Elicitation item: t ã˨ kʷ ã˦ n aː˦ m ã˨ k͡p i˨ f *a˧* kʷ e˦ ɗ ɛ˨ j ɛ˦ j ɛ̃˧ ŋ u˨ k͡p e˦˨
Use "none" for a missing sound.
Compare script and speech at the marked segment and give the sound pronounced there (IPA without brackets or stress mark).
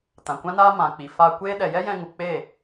a˧